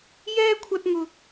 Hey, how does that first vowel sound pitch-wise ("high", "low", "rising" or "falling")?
high